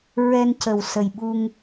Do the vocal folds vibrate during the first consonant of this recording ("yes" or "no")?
yes